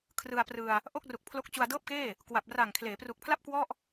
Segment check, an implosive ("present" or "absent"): absent